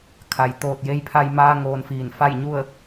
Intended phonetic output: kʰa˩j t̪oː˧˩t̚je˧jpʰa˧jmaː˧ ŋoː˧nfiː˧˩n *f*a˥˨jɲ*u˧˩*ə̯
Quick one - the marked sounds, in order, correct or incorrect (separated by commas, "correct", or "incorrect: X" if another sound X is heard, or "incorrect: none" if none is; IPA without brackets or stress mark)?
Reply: correct, incorrect: u˥˨